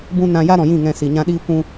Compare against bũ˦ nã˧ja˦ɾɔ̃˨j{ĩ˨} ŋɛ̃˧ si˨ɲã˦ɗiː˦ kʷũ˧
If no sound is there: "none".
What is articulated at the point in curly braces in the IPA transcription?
ĩ˦˨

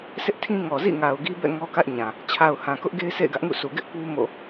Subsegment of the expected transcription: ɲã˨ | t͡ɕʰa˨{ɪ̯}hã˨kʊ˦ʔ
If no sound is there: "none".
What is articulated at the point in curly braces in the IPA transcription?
ʊ̯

